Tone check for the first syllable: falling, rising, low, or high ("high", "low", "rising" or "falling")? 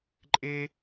high